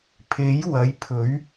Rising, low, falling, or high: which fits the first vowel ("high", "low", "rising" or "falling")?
rising